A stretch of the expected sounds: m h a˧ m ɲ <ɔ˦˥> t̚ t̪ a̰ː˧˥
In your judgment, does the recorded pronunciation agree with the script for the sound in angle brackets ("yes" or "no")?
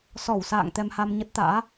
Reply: no